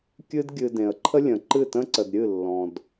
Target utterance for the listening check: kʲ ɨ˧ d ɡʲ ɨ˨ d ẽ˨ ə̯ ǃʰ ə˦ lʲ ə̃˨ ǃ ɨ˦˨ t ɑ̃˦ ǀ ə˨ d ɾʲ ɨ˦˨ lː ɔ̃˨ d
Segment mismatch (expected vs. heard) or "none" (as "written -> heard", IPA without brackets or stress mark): ɑ̃˦ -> ə̃˦